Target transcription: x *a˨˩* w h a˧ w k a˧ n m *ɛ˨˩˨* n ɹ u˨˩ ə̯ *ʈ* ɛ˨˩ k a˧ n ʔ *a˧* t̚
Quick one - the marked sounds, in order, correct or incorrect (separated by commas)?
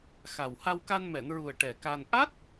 correct, correct, correct, incorrect